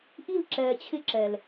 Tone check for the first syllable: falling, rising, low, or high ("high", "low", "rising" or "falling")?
falling